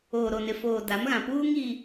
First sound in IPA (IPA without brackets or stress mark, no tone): oː